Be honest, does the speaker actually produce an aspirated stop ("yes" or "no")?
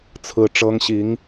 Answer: yes